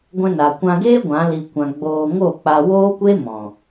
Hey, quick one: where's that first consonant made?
velum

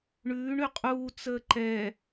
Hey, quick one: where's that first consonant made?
retroflex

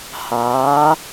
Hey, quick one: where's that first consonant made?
throat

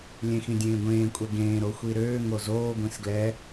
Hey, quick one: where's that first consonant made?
tongue tip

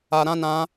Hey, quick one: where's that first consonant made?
tongue tip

